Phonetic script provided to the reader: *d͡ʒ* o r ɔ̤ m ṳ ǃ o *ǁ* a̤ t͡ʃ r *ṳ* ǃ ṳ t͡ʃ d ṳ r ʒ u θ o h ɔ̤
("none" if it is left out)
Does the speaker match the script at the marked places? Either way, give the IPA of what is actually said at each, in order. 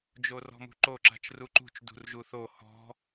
d͡ʒ, ǁ, u

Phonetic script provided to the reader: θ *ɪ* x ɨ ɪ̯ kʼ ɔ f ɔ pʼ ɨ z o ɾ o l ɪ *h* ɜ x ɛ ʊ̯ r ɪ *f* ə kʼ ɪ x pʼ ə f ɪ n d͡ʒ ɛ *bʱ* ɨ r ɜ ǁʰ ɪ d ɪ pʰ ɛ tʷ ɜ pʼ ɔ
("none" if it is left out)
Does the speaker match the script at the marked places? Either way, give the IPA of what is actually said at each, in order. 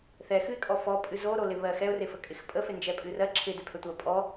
ɛ, β, f, pʼ

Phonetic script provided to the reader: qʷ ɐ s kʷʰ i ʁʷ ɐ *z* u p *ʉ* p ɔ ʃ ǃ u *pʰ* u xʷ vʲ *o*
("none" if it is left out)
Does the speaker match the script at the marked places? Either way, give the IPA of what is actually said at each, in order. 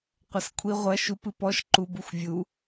ʃ, ɨ, b, u

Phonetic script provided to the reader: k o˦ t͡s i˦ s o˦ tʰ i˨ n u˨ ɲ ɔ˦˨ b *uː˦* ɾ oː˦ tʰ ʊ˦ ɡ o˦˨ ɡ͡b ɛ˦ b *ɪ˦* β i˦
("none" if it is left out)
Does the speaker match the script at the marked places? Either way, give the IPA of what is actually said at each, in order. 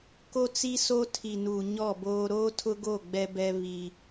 oː˦, ɛ˦

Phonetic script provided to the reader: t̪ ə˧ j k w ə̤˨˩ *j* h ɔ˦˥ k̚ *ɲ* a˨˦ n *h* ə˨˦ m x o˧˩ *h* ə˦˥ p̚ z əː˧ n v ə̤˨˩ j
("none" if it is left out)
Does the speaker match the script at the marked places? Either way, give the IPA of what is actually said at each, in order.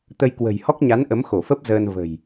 j, ɲ, ʔ, f

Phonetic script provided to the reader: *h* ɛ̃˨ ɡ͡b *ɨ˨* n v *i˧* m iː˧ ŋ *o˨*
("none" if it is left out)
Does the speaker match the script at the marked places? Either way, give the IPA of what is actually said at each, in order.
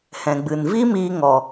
h, ɨ˨, i˦, ɔ˨

